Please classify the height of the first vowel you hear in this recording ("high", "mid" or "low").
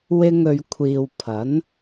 high